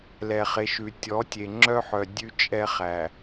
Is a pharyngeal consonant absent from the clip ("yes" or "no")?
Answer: no